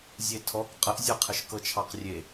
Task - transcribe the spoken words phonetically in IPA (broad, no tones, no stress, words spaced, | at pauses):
zʲetʰɔk qʼəʔzʲɤqʰəʃ kɤt͡ʃʰɑqrʲe